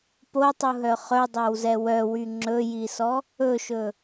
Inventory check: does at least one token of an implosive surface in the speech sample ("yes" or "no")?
no